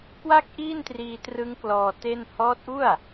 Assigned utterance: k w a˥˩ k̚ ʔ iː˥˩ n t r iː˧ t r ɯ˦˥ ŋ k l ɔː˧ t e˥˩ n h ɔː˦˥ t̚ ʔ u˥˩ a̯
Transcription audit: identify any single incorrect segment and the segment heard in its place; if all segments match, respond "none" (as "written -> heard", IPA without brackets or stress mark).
none